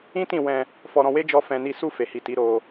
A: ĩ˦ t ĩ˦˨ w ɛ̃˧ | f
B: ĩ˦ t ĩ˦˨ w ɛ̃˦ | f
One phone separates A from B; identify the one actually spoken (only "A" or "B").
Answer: A